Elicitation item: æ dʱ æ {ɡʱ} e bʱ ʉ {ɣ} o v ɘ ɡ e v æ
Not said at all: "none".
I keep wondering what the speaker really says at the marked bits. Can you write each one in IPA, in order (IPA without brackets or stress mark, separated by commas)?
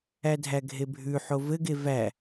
ɡʱ, ħ